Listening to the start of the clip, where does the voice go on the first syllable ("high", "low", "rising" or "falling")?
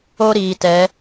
high